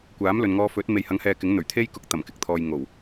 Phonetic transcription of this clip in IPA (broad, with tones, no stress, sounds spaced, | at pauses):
kʷ aː˨˥ m l ɵ˨ n ŋ ɔː˧ f ɵ˨˥ t̚ m e˨ j h ɐ˨˥ ŋ h ɛː˨ k ɪ˨˥ ŋ n̪ ɵ˨˩ ɥ t̪ʰ e˥ j k ʊ˧ k̚ t̪ ɐ˨˩ m k ɪ˨ k̚ t̪ʰ ɔː˨ j ŋ o˨˩ w